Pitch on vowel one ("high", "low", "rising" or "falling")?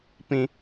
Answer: high